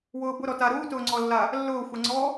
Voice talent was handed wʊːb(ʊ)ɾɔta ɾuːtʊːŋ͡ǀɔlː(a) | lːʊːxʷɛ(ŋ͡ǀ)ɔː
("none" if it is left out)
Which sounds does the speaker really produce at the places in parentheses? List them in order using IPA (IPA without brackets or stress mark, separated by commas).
ʊ, a, ŋ͡ǀ